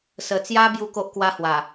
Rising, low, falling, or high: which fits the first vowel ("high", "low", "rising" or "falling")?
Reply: low